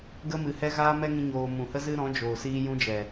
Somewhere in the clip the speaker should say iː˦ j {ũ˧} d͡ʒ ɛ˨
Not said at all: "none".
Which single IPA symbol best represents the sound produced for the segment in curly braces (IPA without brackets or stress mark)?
ũ˦